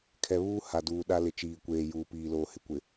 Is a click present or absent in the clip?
absent